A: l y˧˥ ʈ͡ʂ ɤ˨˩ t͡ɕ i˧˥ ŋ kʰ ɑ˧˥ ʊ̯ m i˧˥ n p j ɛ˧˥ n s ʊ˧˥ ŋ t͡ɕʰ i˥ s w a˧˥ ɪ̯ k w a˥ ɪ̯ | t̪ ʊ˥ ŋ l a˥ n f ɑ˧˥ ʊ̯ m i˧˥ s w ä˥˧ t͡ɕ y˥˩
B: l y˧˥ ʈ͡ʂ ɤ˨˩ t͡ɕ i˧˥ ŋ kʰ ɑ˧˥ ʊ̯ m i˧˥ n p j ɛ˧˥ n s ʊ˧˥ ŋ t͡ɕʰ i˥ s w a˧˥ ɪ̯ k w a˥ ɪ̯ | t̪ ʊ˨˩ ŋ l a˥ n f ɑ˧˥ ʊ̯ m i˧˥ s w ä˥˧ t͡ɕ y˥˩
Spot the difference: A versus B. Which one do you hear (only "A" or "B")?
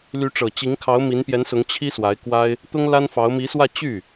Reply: A